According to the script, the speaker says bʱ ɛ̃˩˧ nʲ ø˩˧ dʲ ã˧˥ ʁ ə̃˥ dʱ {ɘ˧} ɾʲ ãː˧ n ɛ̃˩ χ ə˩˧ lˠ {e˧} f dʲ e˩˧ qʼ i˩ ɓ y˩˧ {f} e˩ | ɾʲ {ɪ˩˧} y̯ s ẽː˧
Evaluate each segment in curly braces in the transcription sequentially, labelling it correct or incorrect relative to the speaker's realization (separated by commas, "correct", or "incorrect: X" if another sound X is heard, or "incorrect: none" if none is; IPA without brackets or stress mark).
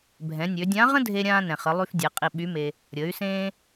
incorrect: e˧, incorrect: y˧, incorrect: m, incorrect: ə˩˧